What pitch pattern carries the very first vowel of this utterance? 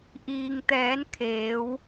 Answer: low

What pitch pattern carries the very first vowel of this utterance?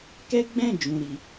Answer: high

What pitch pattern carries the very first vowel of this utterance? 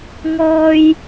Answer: high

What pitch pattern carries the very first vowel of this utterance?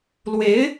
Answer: rising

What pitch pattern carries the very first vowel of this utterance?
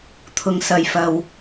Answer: low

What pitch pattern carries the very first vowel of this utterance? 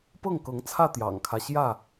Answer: falling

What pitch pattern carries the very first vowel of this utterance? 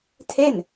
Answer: falling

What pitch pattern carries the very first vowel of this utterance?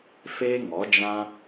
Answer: high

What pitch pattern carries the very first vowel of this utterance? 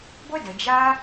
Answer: high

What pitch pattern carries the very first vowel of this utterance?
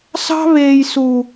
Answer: high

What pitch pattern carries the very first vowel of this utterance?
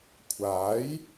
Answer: rising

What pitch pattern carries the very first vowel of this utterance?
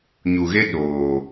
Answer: low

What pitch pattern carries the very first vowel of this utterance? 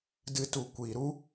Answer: low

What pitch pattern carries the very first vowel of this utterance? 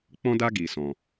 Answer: high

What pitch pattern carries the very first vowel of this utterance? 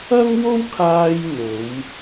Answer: high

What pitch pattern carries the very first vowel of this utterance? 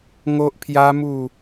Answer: high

